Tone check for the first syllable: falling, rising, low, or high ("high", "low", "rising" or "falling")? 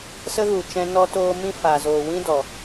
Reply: high